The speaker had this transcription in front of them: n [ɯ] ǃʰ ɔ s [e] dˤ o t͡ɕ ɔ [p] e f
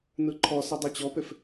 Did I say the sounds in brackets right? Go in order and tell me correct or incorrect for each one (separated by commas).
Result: correct, correct, correct